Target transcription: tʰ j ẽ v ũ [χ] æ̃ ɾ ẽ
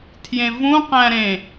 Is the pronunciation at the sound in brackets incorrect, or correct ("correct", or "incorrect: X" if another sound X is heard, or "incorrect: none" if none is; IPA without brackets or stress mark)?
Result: incorrect: q